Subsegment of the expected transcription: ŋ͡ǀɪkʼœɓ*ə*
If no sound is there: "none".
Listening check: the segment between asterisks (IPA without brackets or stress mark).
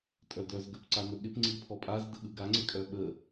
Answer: ə